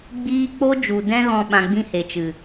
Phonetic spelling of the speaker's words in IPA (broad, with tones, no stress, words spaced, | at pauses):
ɡ͡biː˦ k͡po˦d͡ʒu˨dɛ̃˦ɣɔ̃˧ ɓã˧ɡ͡bĩ˦he˨t͡ʃɨ˨